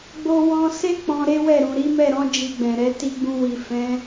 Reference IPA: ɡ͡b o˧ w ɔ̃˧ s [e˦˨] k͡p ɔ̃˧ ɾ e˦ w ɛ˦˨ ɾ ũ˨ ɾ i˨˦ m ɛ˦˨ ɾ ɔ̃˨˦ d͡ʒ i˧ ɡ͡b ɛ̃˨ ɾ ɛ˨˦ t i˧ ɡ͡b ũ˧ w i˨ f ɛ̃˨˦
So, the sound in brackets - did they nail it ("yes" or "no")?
no